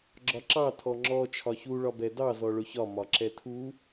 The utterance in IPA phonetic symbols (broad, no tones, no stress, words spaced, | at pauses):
ɡ͡ǁɒǁɑ tʰɔŋ͡ǁɔ t͡ʃʰɒçu ɭɒbɛdɑ zɔɭʊçɒ mɒǁɛtʰu